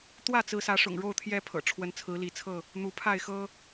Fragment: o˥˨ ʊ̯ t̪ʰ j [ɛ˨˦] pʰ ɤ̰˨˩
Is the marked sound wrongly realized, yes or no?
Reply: yes